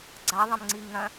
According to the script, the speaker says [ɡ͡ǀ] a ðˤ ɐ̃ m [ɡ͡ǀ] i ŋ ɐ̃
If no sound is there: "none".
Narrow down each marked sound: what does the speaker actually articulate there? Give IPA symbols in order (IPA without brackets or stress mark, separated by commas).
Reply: ɡ͡ǀ, ŋ͡ǀ